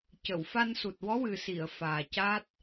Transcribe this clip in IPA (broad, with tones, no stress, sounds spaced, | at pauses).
c ə˨˩˨ w f a˧ n s u˨˩ t̚ w ɔ˧˥ w ɨ˨˩ s i˨˩˨ ə̯ f aː˨˩ c a˦˥ t̚